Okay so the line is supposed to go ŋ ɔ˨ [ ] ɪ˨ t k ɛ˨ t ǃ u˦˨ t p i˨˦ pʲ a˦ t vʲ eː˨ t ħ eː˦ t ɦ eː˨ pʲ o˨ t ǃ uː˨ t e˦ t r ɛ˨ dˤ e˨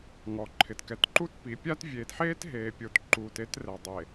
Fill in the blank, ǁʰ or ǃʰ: ǃʰ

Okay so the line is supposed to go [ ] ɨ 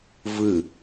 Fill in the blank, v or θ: v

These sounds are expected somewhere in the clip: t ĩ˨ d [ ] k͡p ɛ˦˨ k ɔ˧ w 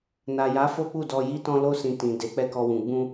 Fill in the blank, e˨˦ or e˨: e˨˦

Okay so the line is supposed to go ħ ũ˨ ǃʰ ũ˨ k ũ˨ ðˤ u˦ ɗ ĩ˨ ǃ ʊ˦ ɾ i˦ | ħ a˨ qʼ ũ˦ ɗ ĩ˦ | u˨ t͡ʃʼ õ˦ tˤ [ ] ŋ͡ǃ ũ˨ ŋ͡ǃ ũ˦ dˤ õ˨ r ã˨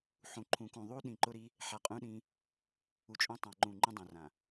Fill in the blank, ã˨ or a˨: ã˨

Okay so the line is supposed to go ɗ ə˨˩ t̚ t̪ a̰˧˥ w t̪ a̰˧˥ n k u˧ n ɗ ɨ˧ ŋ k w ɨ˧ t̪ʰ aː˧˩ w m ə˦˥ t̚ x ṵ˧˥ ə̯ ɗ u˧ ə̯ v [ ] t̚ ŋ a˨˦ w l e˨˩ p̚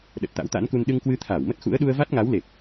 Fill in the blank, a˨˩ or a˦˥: a˦˥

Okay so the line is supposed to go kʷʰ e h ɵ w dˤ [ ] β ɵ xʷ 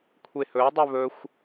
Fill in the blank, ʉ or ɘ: ʉ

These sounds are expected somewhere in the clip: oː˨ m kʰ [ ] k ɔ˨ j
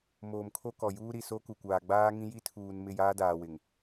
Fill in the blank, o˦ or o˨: o˦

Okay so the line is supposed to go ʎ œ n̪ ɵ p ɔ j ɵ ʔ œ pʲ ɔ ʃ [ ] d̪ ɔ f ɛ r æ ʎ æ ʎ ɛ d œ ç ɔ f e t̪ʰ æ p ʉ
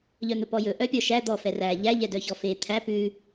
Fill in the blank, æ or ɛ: æ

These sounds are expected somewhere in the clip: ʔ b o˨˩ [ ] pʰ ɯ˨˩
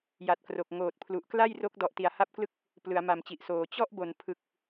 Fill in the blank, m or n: n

